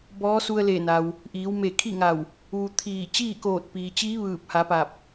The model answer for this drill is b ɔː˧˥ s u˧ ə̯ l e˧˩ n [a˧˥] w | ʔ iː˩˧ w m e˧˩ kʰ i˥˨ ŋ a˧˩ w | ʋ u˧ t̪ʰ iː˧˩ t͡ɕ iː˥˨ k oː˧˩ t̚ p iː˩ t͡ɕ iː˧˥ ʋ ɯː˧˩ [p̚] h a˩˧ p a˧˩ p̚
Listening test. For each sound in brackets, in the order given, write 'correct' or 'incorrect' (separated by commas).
incorrect, correct